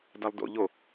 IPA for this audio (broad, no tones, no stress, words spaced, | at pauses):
dalˠdo̰ ʎo